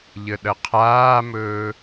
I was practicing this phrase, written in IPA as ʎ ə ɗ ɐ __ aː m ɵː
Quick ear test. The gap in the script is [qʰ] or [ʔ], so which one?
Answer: qʰ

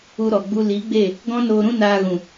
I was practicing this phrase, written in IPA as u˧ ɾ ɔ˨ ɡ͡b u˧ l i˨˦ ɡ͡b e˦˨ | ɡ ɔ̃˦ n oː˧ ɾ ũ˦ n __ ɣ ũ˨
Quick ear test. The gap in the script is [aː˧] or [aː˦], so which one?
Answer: aː˧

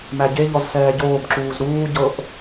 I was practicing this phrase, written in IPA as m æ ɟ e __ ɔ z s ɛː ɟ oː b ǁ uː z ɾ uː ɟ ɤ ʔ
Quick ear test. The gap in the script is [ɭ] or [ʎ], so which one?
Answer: ʎ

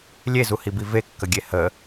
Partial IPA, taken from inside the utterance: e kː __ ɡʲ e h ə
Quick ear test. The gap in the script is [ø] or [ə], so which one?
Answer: ə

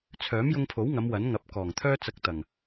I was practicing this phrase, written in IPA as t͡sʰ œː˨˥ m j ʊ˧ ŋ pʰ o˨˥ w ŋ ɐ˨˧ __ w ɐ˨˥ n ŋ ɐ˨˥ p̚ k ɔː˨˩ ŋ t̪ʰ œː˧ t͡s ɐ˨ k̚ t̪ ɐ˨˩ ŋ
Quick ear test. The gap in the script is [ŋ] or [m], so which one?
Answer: m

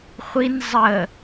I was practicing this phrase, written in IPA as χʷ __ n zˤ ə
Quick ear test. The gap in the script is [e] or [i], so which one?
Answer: i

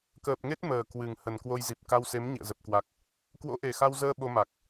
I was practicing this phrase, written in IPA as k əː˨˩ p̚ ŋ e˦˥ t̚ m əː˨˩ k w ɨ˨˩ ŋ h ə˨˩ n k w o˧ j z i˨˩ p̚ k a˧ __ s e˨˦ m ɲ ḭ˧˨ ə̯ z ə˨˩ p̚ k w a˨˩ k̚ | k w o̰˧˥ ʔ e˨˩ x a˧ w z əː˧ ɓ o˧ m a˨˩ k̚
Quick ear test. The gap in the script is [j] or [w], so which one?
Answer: w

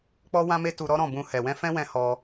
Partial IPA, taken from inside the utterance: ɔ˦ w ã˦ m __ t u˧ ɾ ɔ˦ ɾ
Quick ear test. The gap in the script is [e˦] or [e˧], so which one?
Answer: e˦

